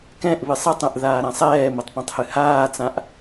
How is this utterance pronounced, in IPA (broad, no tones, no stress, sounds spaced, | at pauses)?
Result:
k ɛ̃ ʔ β ɨ sˤ ɨ tˤ ɛ̃ ʔ ð aː ɾ ã sˤ ɛː m ə tˤ p ɛ̃ tˤ h ɨ h aː t͡s ã ʔ